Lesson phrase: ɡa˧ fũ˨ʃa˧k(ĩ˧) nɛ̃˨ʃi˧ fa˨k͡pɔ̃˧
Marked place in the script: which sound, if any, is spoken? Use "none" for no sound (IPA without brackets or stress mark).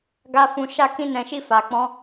ĩ˧